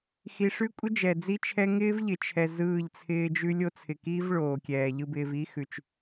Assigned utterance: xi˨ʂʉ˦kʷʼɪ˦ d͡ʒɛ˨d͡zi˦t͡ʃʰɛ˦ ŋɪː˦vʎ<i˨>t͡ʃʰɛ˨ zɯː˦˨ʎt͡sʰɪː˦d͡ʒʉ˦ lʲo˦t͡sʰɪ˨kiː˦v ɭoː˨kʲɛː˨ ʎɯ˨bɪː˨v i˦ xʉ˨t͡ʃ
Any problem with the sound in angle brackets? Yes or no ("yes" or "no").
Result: yes